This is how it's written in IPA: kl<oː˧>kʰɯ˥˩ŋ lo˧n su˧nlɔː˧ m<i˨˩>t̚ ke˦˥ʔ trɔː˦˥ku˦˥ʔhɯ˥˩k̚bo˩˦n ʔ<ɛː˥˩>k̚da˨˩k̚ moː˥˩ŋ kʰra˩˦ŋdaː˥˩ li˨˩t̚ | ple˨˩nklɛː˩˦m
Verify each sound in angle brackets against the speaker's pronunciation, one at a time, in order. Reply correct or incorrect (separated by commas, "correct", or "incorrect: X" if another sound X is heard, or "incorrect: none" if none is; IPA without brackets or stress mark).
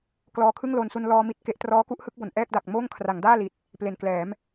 incorrect: ɔː˧, incorrect: i˦˥, correct